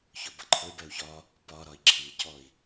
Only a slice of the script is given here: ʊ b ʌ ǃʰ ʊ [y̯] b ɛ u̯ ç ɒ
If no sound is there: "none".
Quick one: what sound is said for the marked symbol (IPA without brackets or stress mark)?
y̯